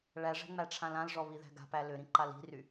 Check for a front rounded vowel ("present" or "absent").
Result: present